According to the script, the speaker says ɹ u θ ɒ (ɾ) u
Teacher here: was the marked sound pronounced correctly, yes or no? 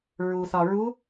no